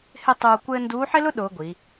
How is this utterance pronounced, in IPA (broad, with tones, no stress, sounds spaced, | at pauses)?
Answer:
h ɪ˥˧ tˤ uː˧ kʷ ɘː˥ n d uː˧˥ ħ ɪ˥ l ʊ˥ ɗ ʊː˧˥ ɡʷ i˩˧